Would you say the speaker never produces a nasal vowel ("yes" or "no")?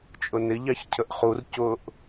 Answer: yes